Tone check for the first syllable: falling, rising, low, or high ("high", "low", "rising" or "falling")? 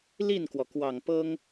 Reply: falling